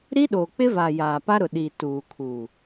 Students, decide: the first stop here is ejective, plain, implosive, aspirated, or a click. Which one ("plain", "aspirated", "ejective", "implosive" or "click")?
implosive